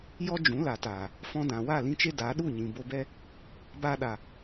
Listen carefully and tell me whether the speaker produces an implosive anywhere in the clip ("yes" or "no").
yes